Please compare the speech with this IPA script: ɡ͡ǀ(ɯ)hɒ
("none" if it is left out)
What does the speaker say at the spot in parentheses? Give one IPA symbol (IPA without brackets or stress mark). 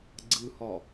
ɯ